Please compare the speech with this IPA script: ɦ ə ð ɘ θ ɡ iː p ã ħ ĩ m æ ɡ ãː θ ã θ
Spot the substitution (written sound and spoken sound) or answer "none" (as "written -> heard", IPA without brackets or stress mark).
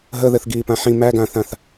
none